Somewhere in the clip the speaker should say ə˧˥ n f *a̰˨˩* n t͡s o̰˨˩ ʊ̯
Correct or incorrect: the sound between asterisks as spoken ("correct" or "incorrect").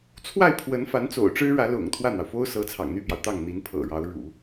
incorrect